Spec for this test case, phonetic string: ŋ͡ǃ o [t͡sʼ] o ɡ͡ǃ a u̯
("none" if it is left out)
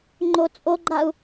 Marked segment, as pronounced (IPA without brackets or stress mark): t͡sʼ